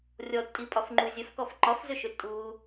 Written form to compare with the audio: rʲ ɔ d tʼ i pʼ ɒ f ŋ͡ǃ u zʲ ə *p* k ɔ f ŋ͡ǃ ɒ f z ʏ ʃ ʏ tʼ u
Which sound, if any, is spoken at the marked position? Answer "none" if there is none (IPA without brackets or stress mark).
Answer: f